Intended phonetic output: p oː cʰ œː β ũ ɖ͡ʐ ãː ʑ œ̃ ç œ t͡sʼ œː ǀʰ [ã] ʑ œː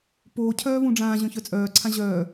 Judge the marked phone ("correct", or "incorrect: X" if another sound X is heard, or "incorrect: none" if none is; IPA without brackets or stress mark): correct